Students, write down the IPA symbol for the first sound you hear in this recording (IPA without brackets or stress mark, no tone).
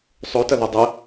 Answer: sˤ